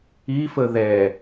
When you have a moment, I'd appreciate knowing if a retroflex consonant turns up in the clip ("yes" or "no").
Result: no